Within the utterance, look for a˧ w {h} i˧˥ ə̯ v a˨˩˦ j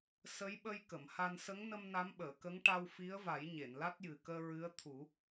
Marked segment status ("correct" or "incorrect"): incorrect